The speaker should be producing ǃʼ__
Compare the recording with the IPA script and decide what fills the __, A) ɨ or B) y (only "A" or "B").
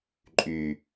B